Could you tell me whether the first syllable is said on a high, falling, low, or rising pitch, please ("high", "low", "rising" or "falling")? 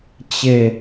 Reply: falling